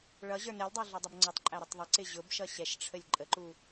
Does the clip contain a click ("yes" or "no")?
yes